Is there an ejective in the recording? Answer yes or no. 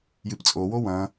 yes